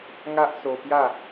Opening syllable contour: high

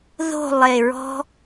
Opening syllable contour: falling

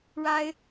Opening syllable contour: high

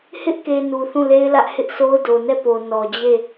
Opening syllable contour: high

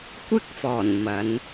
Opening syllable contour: high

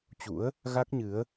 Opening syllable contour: rising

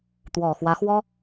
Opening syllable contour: low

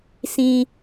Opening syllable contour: high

